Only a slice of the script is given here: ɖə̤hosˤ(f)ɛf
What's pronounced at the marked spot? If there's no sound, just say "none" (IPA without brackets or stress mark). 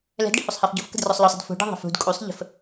h